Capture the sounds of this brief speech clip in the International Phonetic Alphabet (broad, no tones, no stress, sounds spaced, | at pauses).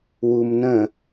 w u m n ə̃